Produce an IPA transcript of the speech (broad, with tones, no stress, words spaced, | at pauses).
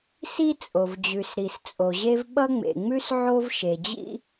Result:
si˥t͡sʼo˩vd͡ʑʉ˩sɾi˩s t͡sʼo˩ʑe˥v ɓʌ˥ŋ͡mḛ˩ŋ͡mʉ˥s ʕo˥vʃe˩d͡ʑḭ˥